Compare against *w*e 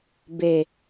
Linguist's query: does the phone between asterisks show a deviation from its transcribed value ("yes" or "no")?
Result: yes